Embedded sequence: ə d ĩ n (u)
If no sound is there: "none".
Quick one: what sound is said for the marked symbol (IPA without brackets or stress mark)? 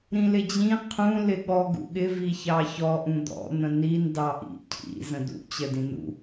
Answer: ṵ